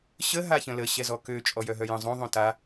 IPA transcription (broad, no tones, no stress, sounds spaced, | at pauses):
ɕ ə ɦ a ç ə̃ l ə ɕ ɛ z ɔ k ø t͡ʃʼ ɔ j œ ɦ œ j ə̃ zˤ õ ðˤ õ t a